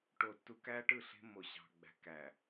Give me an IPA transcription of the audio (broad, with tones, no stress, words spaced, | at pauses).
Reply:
ʈo˨tːu˨kæ˦ʈɯ˦˨ ɬe̤˦mːo˨ ɕɑ̤˨ɡ͡bæ̤˨ kæ˨